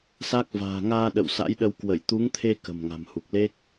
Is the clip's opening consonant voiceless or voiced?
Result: voiceless